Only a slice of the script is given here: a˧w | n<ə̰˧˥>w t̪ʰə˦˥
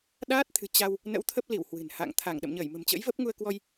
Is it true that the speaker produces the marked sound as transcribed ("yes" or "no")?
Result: yes